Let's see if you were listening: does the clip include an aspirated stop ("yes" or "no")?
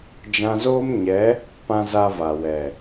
no